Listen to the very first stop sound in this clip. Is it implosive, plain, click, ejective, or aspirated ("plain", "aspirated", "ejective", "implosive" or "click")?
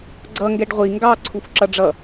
click